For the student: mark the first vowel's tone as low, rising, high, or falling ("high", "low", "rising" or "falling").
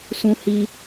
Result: high